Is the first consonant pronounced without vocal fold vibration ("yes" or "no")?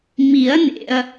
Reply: no